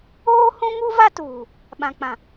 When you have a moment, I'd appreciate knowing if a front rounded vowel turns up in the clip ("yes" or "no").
no